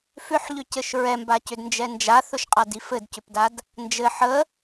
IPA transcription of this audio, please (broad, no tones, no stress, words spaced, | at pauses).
fʏħʎʏcɘʃ ɹɛmbacʏdnd͡ʒɛ nd͡ʒaθɵʃqʼadi fɘdcʏpdad | nd͡ʒɘ ħə